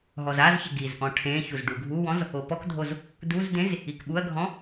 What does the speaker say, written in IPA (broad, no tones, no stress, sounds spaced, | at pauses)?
ɦ ɔ z a z ç ɪ ɡ i z ʔ ɔ̃ ʈʰ ẽ ç u z ɖ u ɡʱ u w ɔ̃ z | o p ɔ k dʱ o z | d u z d ẽ z | i k ɓ u ɐ̯ ɡʱ ɔ̃